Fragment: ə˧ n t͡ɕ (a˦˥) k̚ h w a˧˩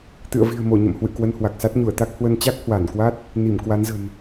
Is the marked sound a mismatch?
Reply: no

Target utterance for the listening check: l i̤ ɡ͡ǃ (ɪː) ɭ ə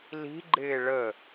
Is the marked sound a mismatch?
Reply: no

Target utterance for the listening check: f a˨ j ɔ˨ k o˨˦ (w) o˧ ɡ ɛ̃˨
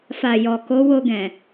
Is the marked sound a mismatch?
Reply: no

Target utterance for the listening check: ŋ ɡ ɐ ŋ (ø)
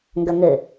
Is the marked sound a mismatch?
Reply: yes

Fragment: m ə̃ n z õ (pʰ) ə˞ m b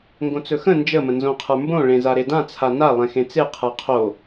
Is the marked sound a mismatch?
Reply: yes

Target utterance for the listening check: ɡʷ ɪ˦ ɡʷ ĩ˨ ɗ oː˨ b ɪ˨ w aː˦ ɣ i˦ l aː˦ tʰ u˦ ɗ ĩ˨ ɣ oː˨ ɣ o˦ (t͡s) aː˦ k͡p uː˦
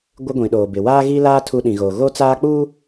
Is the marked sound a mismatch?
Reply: no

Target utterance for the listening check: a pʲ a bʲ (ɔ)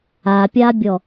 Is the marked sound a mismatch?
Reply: no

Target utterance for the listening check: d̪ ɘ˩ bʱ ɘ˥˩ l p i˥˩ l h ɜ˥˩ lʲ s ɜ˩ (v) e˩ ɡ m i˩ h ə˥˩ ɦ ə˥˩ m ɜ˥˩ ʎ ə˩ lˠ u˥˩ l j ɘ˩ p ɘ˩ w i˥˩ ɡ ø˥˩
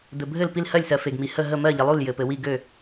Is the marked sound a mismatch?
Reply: yes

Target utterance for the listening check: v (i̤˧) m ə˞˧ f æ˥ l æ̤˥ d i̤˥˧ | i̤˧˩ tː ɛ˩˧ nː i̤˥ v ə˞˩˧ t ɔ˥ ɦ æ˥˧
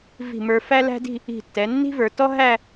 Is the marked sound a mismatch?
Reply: yes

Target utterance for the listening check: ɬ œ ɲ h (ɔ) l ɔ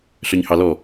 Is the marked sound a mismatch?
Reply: yes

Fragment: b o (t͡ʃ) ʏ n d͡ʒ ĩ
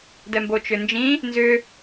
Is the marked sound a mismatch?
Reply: no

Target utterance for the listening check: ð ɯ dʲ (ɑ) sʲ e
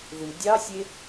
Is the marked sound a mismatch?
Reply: no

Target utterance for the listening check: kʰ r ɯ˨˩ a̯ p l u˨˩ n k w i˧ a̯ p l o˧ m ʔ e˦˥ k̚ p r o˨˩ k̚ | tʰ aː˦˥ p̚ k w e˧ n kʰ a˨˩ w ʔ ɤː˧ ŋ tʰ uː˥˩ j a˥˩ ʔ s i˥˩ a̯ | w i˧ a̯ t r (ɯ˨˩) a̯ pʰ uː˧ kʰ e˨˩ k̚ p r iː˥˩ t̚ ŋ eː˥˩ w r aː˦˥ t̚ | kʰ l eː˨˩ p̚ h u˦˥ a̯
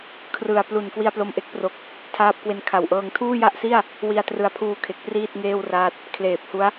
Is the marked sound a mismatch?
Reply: no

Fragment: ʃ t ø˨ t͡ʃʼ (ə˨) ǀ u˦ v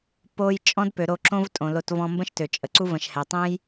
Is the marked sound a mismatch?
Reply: no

